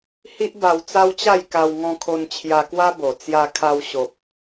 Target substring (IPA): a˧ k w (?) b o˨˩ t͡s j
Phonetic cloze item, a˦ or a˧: a˦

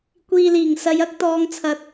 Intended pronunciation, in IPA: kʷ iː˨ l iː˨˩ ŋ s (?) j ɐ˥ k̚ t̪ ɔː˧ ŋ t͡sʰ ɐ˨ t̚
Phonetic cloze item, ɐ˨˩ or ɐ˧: ɐ˧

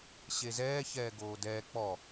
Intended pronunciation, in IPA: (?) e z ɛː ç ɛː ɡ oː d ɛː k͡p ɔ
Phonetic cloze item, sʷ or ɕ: ɕ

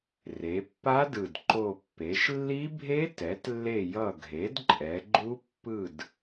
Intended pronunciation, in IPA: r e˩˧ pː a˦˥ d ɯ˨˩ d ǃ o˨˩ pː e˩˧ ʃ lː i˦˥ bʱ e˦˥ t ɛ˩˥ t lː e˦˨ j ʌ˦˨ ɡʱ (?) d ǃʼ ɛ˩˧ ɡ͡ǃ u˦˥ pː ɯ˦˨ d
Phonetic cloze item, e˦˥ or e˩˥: e˩˥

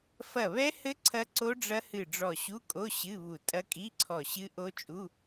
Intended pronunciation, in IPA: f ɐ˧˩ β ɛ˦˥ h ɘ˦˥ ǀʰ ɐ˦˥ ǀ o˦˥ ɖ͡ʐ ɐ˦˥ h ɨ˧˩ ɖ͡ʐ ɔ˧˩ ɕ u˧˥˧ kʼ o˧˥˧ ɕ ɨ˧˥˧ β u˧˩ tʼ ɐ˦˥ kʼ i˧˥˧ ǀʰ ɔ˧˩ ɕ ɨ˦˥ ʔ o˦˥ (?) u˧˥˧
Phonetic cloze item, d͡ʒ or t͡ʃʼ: t͡ʃʼ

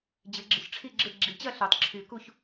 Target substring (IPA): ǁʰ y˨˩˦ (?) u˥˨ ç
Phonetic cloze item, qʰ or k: k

